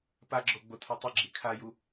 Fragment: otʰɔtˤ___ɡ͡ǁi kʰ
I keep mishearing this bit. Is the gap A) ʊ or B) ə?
A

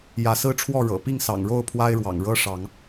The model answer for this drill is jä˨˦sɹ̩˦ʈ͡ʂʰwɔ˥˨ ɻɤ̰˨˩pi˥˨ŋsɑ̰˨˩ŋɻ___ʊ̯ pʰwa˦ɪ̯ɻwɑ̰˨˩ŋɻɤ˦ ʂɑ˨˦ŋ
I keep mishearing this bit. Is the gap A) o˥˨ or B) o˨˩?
A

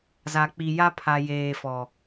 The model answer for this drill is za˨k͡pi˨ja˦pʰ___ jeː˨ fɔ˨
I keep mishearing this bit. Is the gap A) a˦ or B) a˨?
B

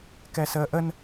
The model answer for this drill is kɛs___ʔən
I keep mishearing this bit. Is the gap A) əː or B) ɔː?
A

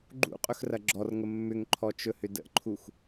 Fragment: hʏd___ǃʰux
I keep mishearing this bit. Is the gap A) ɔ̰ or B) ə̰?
B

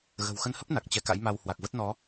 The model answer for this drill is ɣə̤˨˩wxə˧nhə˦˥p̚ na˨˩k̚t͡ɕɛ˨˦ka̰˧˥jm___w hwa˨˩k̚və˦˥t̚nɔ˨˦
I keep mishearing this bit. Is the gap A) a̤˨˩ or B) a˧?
B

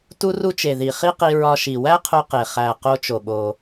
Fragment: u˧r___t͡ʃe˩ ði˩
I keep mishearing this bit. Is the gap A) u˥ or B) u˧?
B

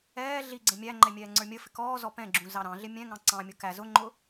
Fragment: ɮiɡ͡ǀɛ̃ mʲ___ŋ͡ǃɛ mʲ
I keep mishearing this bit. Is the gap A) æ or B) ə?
A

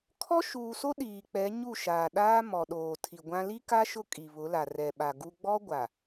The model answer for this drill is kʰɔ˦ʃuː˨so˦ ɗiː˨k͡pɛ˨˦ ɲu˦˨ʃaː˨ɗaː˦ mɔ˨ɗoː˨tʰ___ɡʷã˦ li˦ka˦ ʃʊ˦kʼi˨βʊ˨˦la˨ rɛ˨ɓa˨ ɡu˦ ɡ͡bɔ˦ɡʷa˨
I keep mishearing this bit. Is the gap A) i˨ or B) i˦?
A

